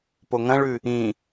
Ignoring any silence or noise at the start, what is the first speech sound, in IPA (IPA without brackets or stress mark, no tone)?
p